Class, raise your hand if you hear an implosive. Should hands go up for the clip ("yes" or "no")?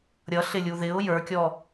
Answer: no